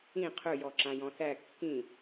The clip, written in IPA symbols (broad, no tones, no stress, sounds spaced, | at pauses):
ĩ qʰ ɵ j ɔ ǁ ã j ɔ̃ s æ kː ĩ